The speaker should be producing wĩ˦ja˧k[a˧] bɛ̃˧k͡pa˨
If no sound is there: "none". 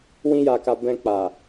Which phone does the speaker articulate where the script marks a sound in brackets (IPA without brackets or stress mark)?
a˧